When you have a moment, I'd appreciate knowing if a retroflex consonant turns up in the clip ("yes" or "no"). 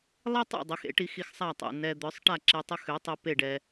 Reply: yes